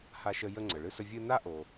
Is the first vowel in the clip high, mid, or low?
low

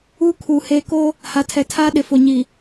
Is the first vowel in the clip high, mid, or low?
high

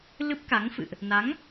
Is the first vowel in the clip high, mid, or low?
high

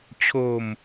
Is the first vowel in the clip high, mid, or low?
mid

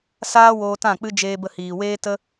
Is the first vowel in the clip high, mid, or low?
low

